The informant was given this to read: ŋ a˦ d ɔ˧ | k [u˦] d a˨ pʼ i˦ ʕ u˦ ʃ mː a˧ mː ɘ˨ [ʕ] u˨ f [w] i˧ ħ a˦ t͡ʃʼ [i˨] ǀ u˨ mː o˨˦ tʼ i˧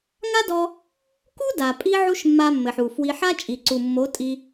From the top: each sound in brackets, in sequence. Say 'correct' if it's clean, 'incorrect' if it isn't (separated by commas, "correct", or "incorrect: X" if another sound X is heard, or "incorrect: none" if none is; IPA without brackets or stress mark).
correct, incorrect: ħ, correct, correct